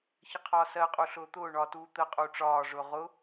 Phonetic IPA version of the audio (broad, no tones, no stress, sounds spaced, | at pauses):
ç ə qʰ ɒː s ɜ qʼ u ɬ ʊː t̪ ʊː ɳ ɒ t uː t̪ ə qʼ u ʈ͡ʂ ɒː ʐ ʊː ʁ ʊ